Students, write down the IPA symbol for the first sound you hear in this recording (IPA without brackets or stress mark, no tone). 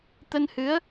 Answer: t̪